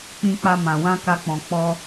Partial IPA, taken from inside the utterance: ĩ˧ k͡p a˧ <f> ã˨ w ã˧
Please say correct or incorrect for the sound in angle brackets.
incorrect